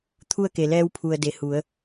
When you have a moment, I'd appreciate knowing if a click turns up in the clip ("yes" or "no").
no